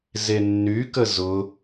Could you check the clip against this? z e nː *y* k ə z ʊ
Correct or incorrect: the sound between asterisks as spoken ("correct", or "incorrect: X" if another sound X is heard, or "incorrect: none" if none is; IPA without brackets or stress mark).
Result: correct